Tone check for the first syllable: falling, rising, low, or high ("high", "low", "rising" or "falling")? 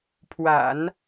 low